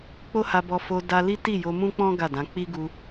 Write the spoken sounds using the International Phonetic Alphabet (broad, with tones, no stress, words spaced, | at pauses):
k͡po˦ha˧ bɔ˧fo˧ da˧li˦ ti˦˨jo˧mũ˦k͡pɔ̃˦ ɡa˦˨dã˨˦ k͡pi˦ɡu˧